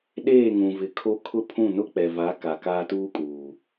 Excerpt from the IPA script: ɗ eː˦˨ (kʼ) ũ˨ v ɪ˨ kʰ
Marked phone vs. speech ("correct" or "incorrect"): incorrect